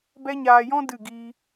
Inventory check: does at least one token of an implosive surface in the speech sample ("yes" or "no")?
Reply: no